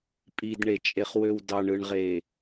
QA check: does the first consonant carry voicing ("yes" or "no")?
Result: no